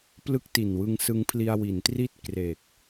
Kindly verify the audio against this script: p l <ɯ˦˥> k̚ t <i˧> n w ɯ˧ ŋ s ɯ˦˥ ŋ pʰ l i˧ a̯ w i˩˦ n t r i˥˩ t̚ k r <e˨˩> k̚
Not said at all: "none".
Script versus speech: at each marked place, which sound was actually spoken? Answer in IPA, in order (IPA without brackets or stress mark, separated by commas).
ɯ˦˥, i˨˩, e˨˩